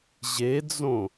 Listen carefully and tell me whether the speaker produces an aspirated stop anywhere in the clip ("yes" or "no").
no